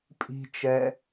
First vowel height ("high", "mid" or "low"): high